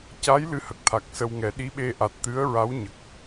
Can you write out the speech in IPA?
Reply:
c a˧˥ j l ɨ˧˥ h ə˨˩ k̚ t̪ʰ a˨˩ k̚ s ə˧ w ŋ ɛ˨˩˦ ɗ i˧˥ ɓ e˧ ʔ a˨˩ t̚ t̪ ɨ˧˥ ə̯ ɹ a˧˥ w ɲ ə˨˩ k̚

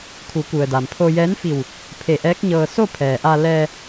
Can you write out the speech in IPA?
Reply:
kʰ u˩˧ k u˩ ə̯ d a˩ m pʰ o˧ j ɛː˧˥ n f i˧˩ w | pʰ e˧˩ ʔ ɛː˧˥ k̚ ɲ ɤː˧ s o˥˨ pʰ ɛː˩ ʔ a˧ l ɛː˧

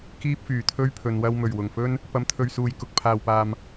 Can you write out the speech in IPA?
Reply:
k iː˥ p̚ f yː˨˩ t̪ʰ ɵ˥ ɥ pʰ ɵ˨ n w ɐ˧ w m ɵ˨˩ ɥ w ʊ˨˩ ŋ f ɵ˥ n | p ɐ˨ m t̪ʰ ɵ˨ ɥ s uː˨˩ j k ʊ˨ k̚ pʰ aː˨ w p aː˨ m

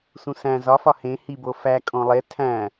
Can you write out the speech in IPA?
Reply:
s ũ s æ̃ z ɒ f ɒ h ẽ h i b o f æ kʼ õ lˠ e tʰ æ̃

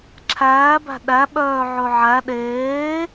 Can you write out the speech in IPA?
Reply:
ǁʰ æː b æ̤ ɗ æ ɓ œː ʕ ɵ ʕ æ ɗ eː

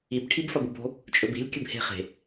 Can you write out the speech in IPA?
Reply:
i b ʈʰ i b f ɐ b u b o̤ | t͡ʃʼ ɵ b i̤ lʲ kʲ ɨ b h e̤ χ e̤

